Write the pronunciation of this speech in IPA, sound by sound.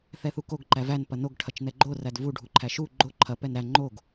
θ ɛ θ u k o ɡ ǃ æ v æ n p ɐ n o ɡ ʈʰ ɐ t͡ʃ n ɛ ɡ͡ǃ o r æ d v u ɖʱ u ǃʰ æ ʃ u ɡ͡ǃ o ǃʰ ɐ p ɛ n ɾ æ ŋ͡ǃ o ɡ

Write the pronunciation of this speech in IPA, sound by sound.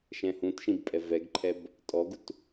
ʃ ɛ̃ h ũ t ʃ ĩ b pʼ ɛ v ɛ ɡ ǃʰ ɛ b | tʼ ɔ ɡ u t

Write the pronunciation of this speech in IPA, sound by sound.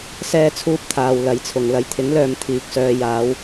s ɛː˥ t͡sʰ uː˥ p̚ t̪ʰ aː˧ w l ɐ˧ j t͡sʰ ʊ˨ ŋ l ɐ˨˧ j t̪ʰ ɪ˨˥ ŋ l œː˨ m t̪ʰ iː˨ k̚ s œː˧ j aː˨˧ w

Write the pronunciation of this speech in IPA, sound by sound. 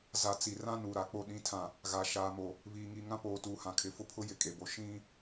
z a˨ t͡s i˨ r ã˦ n u˨ ɾ a˨ k͡p o˦ ɗ ĩ˨˦ tʰ ã˨ | ɣ a˨ ʃ aː˨ m o˨ | β iː˨ ŋ i˨ ŋ ã˦ p oː˨ t uː˨ h ã˨ kʰ ɪ˨ f ʊ˦ pʰ ʊ˦ j ɪ˨ kʼ e˨ b o˨ ʃ ĩ˦

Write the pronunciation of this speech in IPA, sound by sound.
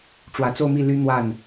ʈ͡ʂ w ä˨˩ t͡s o˥˧ ʊ̯ m i˥˩ l y˥ n̪ w a˥˩ n

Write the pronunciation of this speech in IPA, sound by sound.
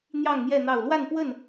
n̪ j ɑ˥˨ ŋ n̪ j ɛ˥˨ n̪ ɑ˥˨ ʊ̯ l w a˥˨ n p w ə˥˨ n

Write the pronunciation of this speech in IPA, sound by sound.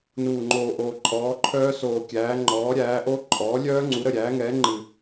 n uː˨˩ ŋ͡ǃ oː˨˩ ʔ oː˨˩ ǃʼ ɔː˩˥ ǃʰ œː˦˥ s oː˨˩ kʲ æː˩˥ ŋ͡ǃ ɔː˩˥ ɾʲ æː˩˥ ʔ o˦˥ ǃʼ ɔː˩˥ lʲ œː˦˥ ŋ͡ǀ u˩˥ ɾ ə˨˩ ɾʲ æː˩˥ ŋ ɛː˩˥ ŋ͡ǃ ɨ˨˩

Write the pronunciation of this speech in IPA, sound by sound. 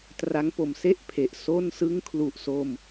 t r a˦˥ ŋ p o˩˦ m s e˥˩ ʔ pʰ e˨˩ ʔ s o˥˩ n s ɯ˥˩ ŋ kʰ l u˨˩ ʔ s o˧ m

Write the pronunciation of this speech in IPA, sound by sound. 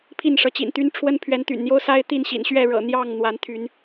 pʰ i˥˨ n ʂ ɤ˨˦ t͡ɕ ḭ˨˩ n t̪ y˦ n ʈ͡ʂʰ w ə˦ n pʰ ɥ ɛ˨˦ n t̪ y̰˨˩ n n̪ j o˦ ʊ̯ s a˦ ɪ̯ t̪ i˥˨ n ɕ ḭ˨˩ n ɕ ɥ ɛ˥˨ ɻ ɤ̰˨˩ n̪ j ɑ˥˨ ŋ n̪ w a˨˦ n t̪ʰ y˨˦ n

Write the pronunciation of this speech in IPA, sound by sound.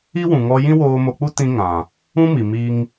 i˦ w ũ˨ ŋ ɔ˧ j ĩ˦ w oː˧ m o˧ k͡p u˦ t ĩ˧ ŋ ã˨ | ũ˦ m i˨ m i˧ ŋ

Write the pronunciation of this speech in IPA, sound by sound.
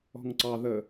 ɔ̤ ŋ ǀ ɑ ð ə

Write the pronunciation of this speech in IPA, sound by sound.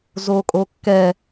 z o kʼ o kː ɛ

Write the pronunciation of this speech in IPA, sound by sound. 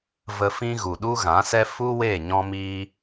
v ə˧ f ĩ˦ ɣ u˨ ɗ u˦ ɣ ã˨˦ s ɛ˦ f u˦ w e˦˨ ɲ ɔ̃˦ m iː˦

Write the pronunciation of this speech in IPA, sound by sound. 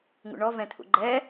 ŋ ṵ ɳ ɔ v ɛ̃ t̪ʰ ṵ ɡ͡ǃ ɛ

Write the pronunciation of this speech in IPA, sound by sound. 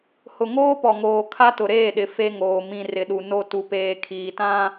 h ʊ˨ ŋ oː˦ p ɔ˨ ŋ oː˨ kʰ a˦ t ʊ˨ ɾ eː˦˨ ɗ ɪ˨ f e˦ ŋ oː˨ m ĩ˨ r ɪ˨ ɗ u˨ n o˨ t u˨ p eː˨ kʰ iː˨ t ã˦

